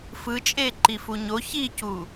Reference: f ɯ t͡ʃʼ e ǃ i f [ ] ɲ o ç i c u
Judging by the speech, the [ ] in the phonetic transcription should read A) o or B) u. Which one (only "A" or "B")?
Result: B